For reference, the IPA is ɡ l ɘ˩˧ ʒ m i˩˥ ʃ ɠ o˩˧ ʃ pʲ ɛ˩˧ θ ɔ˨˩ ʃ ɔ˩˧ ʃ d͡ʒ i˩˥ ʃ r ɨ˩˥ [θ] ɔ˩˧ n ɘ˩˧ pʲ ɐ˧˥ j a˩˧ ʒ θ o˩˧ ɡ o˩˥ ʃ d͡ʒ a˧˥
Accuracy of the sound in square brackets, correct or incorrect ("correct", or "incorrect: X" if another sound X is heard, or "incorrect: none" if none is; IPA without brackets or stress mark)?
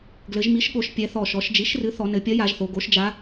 correct